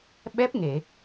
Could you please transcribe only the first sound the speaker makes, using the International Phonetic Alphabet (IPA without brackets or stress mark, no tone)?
ɓ